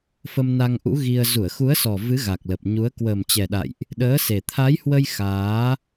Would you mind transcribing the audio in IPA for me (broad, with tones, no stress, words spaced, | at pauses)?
fə˧mna˧ŋʔṵ˧˥ ɣi˧ə̯ zu˧˩ə̯xu˨˦ə̯sɔ˨˩ vɨ˨˦ ɣa˨˩k̚lə˨˩p̚ɲu˨˦ə̯ kwəː˨˩mt͡ɕɛ˨˩ɗa̰˧˨jʔ | ɗəː˨˦se˨˩ t̪ʰa˨˦jhwə˧j xaː˨˦